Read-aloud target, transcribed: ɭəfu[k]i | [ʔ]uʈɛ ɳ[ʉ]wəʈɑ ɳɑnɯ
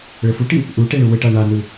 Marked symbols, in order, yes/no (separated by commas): no, yes, no